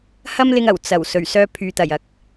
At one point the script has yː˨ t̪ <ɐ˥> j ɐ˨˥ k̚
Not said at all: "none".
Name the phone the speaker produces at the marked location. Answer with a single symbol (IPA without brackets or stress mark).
ɐ˨˩